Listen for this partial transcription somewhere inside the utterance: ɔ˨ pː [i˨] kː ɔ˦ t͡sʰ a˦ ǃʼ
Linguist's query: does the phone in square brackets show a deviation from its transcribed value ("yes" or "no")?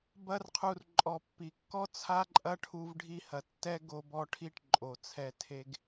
no